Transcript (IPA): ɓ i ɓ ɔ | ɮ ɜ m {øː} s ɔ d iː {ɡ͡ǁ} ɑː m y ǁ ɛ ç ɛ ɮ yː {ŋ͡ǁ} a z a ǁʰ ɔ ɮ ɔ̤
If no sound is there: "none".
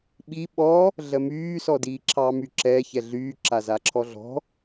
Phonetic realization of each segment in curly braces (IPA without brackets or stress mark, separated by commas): yː, ǁʰ, ǁ